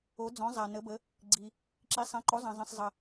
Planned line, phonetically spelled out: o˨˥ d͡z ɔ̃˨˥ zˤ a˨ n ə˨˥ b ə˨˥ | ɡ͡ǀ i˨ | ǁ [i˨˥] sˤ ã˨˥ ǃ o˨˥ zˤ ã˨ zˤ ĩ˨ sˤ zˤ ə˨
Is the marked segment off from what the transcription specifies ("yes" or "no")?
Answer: no